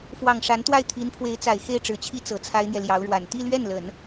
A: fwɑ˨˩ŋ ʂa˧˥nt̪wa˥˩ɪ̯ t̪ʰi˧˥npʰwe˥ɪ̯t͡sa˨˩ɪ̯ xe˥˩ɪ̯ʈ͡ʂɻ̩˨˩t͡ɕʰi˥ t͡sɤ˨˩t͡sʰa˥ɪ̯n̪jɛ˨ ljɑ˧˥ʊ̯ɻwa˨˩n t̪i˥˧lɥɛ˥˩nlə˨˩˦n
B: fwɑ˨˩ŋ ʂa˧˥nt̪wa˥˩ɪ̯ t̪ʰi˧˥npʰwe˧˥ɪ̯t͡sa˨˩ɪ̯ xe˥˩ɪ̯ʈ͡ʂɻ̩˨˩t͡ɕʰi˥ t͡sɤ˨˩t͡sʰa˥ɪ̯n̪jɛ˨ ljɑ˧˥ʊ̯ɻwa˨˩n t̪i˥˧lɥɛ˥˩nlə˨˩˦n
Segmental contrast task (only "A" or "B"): B